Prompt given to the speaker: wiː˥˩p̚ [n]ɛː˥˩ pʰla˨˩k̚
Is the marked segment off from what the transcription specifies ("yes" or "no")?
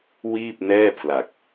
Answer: no